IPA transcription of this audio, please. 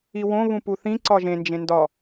i w õ β ũ p u θ ĩ ǀ ɒ ʒ ẽ n d͡ʒ ẽ n d ɒ

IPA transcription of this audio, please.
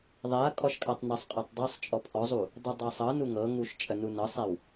ðˤ ɛ ɐ̯ kʼ ɔ ʃ kʼ a tˤ n ə sˤ qʼ ɤ tˤ dˤ ɤ sˤ t͡ʃʼ ɔ pʰ ɔ zˤ u | dˤ u dˤ ɤ sˤ ɤ n u ŋ ɤ ŋ u ʃ t͡ʃʼ ə n u n ɤ sˤ ɛ w

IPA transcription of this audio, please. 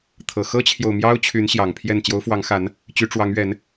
t̪ʰ ɤ˨˩ x ɤ˦ t͡ɕʰ j o˨ ʊ̯ m j ɑ˦ ʊ̯ t͡ɕʰ y˨˦ n ɕ j ɑ˨˩ ŋ pʰ j ɛ˥˨ n t͡ɕ j o˨˦ ʊ̯ f w ɑ˨˦ ŋ x a˨˦ n | t͡ɕ y˨˦ ʈ͡ʂ w ɑ˨˦ ŋ ɥ ɛ˨˦ n

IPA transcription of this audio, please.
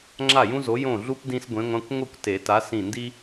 ŋ͡ǁ a˥˩ j ũ˥ z o˨˥ j õ˥˩ ɮ u˥ p d ĩ˥ s ɡʷ ẽ˨˥ ŋʷ ã˧˥˧ kʷ ŋʷ ɨ˥˩ kʷ t e˨˩˦ t a˨˥ s ĩ˧˩ n d i˥

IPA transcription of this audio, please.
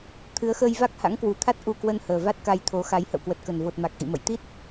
t̪ʰ ɨ˨˦ ə̯ x əː˧ j v a˦˥ k̚ h a̰˧˥ ŋ k w u˨˩ t̪ʰ a˦˥ t̚ ʔ u˧ k w ə˧ n h əː˨˩ v a˦˥ t̚ k a˧ j t̪ʰ o˨˦ x a˨˦ j h ə̰˧˨ w k w ə˨˩ t̚ k ə˨˩ n v o˨˩ t̚ m a˨˩ k̚ ʔ ḭ˧˨ m ə̰˧˨ j t̪ i˦˥ t̚

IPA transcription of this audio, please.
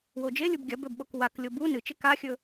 w o d͡ʒ e lʲ u b ɡʲ ɐ b ɵ b ɓ o k w a k lʲ o b u n ɨ t͡ʃ e k a xʲ ɵ

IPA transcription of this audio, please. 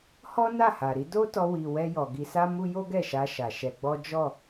h ɔ˦ n a˦˨ h a˨ ɾ i˨˦ d o˦ t ɔ˧ w i˨ w ɛ˧ j ɔ˨ ɡ i˧ s a˦ m u˦ j o˦ ɡ ɛ˦˨ ʃ a˧ ʃ a˨ ʃ ɛ˧ ɡ͡b ɔ˦ d͡ʒ ɔ˦˨

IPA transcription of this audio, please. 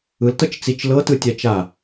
ɯ l t ɤ t͡ʃ t͡s i t͡ʃ l ɤ t ɯ tʲ a t͡ʃ a

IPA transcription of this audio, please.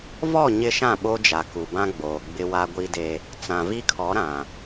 v ɔ˦˨ ɲ ɪ˦ ʃ ã˦˨ ɓ o˦ d͡ʒ a˨ k u˨ b ã˦ ɡ͡b oː˨ ɡ͡b ɪ˦ w a˦ ɡʷ i˦ d e˦ | t͡s ã˨ v i˦ kʰ ɔ˨˦ ɾ ã˨

